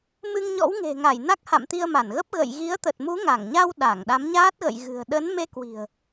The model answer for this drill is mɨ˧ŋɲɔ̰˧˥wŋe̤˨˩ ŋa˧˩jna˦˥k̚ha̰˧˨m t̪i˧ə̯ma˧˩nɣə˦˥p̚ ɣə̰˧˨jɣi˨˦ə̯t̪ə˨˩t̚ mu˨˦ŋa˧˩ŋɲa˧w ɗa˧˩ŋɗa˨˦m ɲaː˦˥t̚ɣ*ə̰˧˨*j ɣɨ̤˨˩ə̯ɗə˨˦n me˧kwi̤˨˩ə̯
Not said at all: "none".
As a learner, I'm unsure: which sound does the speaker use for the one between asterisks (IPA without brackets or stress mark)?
ə̰˧˨